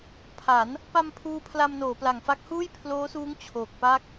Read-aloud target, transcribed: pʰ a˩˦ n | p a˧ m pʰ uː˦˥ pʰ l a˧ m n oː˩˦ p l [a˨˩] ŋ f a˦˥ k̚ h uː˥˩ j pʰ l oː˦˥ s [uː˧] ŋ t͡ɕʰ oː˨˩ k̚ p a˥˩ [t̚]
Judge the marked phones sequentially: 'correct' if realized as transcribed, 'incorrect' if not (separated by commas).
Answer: correct, incorrect, incorrect